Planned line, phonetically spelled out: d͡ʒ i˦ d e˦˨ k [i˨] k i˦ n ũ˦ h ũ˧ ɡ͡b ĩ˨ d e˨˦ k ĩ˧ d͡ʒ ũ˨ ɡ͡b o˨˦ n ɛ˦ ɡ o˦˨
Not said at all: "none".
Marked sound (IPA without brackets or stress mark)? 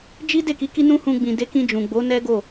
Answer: i˨˦